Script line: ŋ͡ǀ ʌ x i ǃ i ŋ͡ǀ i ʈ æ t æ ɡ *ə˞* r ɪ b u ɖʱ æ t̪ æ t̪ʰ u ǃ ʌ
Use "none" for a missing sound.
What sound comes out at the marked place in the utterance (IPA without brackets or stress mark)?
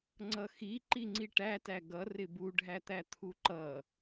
ʌ